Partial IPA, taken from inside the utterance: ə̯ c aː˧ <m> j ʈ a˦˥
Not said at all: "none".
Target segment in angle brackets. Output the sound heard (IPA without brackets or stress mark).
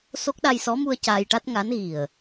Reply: none